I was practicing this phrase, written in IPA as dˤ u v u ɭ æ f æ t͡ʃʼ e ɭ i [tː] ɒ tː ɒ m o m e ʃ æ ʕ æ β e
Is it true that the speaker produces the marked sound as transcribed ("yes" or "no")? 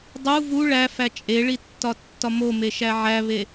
yes